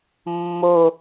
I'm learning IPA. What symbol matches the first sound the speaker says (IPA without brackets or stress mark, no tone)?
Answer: mː